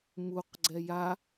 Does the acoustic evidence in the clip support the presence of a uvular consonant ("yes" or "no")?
yes